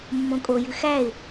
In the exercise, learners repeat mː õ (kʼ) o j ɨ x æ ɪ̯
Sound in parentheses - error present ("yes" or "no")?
no